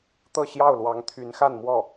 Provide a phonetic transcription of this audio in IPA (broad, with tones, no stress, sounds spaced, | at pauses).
t̪ ɤ˥˧ ɕ j ɑ˥˩ ʊ̯ l w ɑ˧˥ ŋ t̪ʰ y˧˥ n x a˥˧ n m w ɔ˥˩